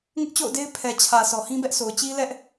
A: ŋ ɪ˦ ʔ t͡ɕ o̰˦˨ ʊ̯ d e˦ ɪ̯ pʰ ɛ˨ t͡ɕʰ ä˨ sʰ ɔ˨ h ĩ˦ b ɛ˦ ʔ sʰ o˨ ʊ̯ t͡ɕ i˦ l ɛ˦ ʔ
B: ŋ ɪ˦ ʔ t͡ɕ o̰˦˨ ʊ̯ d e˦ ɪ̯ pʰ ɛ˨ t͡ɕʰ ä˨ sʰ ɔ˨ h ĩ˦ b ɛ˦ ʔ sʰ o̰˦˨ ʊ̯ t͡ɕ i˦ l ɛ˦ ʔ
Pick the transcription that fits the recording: A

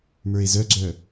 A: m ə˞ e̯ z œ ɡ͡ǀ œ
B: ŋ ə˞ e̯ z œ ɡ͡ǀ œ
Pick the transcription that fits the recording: A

